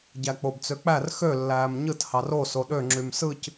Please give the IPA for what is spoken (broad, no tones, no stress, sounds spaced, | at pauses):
ɟ æ k͡p o b t͡s ø k͡p æ r x ø lː æː m ɲ ɯ t h ɑ r o s o ɗ ø ŋ͡ǁ y m s ɯ c